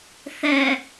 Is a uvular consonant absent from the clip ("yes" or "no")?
yes